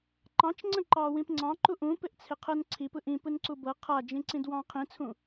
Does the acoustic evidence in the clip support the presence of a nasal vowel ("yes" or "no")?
yes